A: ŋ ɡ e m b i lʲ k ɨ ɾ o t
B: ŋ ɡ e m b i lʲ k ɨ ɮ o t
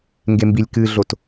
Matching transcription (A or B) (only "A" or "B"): B